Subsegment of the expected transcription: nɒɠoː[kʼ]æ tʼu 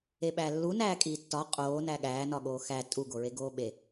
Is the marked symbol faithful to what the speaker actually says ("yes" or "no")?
no